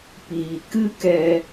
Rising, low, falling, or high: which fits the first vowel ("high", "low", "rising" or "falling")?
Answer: low